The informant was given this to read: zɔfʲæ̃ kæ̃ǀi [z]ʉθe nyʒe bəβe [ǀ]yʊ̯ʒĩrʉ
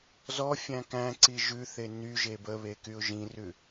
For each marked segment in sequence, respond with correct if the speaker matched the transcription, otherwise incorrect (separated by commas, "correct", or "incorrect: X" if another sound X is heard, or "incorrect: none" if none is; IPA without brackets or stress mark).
incorrect: ʒ, incorrect: k